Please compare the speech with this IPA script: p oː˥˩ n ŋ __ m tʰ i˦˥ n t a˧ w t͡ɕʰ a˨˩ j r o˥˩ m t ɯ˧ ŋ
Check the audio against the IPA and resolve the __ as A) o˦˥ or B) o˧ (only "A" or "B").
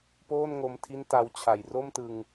B